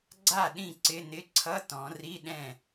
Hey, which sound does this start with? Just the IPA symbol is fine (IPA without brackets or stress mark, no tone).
ɡ͡ǀ